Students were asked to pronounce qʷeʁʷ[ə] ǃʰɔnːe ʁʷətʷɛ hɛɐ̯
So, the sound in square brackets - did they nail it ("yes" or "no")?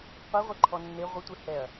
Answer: no